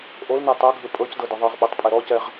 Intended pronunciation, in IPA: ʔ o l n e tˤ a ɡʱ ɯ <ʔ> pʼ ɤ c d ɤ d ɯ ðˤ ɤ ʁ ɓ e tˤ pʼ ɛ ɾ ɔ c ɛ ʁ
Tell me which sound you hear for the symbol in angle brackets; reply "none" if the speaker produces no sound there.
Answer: none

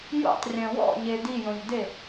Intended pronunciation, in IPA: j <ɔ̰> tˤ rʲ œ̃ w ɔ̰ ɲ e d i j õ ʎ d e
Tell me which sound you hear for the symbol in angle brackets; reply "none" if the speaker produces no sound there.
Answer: o̰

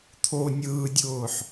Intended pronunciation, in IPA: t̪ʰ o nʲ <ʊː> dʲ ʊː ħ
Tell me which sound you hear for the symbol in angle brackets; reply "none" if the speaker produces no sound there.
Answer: ɯː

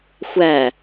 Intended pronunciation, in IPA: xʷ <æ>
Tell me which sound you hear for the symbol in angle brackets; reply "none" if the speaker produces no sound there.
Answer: æ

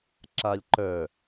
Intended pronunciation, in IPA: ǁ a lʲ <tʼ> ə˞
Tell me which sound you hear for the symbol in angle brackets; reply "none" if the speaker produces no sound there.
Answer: ǃ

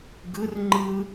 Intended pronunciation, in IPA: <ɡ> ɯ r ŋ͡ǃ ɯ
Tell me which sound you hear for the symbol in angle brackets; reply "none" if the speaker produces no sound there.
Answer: ɡ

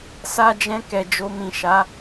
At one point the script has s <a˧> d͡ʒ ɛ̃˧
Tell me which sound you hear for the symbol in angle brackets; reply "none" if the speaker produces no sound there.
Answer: a˧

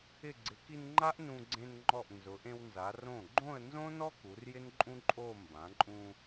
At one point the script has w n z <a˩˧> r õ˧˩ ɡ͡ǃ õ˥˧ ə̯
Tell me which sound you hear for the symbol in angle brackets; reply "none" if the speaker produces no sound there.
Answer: a˩˧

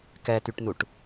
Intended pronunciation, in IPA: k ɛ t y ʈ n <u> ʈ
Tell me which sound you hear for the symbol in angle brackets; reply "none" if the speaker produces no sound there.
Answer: u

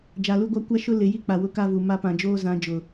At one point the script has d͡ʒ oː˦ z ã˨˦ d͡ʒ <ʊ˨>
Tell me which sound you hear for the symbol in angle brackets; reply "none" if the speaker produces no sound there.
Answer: ʊ˨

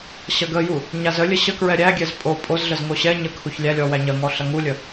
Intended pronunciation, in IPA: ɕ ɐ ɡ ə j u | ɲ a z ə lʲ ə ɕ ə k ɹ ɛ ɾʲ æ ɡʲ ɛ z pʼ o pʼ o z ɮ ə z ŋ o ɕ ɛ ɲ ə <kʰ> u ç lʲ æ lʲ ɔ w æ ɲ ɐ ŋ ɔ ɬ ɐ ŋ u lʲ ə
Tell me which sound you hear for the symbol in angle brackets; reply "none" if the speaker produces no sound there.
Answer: kʰ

